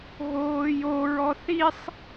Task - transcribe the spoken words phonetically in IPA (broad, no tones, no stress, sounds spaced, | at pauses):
ɣ oː j o ɹ ɔ θ i sˤ